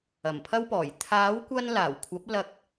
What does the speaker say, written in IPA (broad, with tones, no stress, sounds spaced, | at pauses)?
ɐ˨˩ m pʰ ɐ˥ w p ɔː˨˩ j t̪ʰ aː˨˥ w kʷ ɐ˧ n l aː˨˩ w kʷʰ ɐ˨˥ p̚ l ɐ˧ k̚